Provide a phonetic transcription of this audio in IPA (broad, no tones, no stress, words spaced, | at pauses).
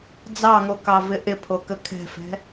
d͡zɑŋokɑvɪ ʔɪpʰokə kʰɛ̤fɛ̤